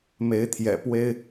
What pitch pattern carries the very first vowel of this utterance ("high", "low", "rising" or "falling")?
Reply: rising